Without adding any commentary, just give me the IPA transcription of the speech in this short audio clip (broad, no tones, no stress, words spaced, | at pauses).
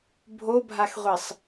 bʱobʱaxʁʷisˤ